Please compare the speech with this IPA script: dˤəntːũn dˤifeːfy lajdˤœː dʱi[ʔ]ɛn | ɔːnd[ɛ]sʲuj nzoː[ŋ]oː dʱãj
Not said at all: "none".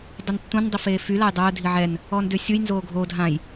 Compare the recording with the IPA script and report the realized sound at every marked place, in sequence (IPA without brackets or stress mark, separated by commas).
ʕ, ø, ɡʱ